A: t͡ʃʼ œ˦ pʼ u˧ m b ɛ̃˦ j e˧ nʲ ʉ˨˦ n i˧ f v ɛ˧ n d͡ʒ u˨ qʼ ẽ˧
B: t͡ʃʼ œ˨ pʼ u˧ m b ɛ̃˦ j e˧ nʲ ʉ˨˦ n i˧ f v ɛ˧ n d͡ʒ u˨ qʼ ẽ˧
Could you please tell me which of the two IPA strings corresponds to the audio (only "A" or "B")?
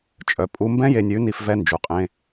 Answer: B